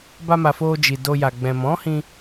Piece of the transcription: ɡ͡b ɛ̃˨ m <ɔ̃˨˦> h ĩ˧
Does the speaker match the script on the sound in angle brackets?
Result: yes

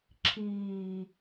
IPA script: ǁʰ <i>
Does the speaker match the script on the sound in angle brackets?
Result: no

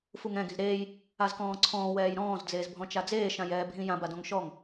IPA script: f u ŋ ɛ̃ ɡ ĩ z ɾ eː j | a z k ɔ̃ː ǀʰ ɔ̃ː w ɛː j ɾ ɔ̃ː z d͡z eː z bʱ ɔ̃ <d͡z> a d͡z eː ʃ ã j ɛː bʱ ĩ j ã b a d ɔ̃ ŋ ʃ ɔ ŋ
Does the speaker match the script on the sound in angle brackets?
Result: no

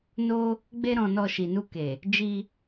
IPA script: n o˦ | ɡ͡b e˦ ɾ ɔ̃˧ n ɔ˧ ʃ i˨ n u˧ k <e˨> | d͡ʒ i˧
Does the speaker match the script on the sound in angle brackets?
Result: yes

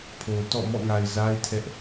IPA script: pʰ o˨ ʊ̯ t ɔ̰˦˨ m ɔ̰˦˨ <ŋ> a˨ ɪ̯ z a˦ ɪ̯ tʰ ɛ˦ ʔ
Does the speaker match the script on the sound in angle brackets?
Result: yes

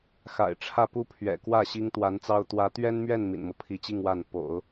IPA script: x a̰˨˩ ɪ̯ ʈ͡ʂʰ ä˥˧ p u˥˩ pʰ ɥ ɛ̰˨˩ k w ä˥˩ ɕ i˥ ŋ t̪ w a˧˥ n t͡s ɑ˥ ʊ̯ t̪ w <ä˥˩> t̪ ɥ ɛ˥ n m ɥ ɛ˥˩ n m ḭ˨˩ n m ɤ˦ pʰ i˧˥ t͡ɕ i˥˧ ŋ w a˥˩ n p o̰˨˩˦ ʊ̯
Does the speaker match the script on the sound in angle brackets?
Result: no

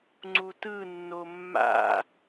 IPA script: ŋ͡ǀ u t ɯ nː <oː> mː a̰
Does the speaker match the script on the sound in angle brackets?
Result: no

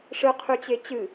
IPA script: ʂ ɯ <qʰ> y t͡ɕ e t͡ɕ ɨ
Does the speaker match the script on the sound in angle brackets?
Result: yes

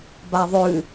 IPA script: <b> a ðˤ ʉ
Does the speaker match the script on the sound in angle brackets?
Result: yes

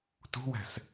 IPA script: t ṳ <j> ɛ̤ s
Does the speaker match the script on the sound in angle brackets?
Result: no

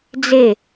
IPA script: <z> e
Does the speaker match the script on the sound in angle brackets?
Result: no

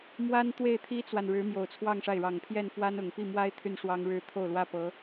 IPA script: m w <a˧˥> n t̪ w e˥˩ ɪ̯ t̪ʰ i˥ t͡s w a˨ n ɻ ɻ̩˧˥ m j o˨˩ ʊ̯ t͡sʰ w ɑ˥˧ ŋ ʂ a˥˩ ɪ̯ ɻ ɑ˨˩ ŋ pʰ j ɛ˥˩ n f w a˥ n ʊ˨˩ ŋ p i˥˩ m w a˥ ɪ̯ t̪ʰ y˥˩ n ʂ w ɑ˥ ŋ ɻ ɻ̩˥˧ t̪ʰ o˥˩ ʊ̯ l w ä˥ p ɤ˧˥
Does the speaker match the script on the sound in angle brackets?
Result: no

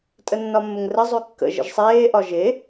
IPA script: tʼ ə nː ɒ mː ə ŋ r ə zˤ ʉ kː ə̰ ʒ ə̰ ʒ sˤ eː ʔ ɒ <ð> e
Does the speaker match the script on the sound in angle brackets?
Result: no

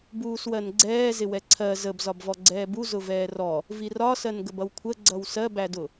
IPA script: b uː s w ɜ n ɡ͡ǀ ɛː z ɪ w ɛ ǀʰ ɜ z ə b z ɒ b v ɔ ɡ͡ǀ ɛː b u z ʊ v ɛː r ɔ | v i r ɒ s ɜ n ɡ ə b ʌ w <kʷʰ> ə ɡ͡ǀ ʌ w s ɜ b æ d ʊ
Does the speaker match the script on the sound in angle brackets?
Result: yes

